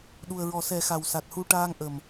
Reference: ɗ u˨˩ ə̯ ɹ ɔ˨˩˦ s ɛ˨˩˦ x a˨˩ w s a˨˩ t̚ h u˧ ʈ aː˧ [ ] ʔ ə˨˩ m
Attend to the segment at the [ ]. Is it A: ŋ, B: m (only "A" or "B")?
A